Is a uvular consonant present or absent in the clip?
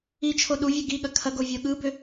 absent